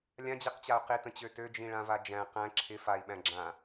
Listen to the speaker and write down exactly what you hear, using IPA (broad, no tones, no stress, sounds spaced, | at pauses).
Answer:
lʲ ã d͡ʑ i q t͡ɕ a u̯ q i t ə̃ t͡ɕ ø t ø d͡ʒ ĩ ɭ ã v a d͡ʒ æ̃ q æ̃ ǁʰ ɪ f a i̯ ɓ æ̃ ɡ͡ǁ ã